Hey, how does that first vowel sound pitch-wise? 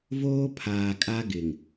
high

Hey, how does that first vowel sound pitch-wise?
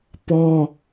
high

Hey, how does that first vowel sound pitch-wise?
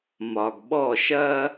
low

